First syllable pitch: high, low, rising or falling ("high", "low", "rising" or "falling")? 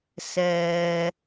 high